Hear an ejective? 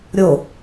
no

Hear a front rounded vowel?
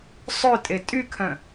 yes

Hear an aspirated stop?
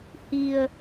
no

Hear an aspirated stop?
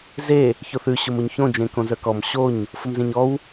no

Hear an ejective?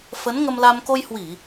no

